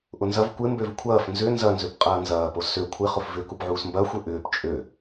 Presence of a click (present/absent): absent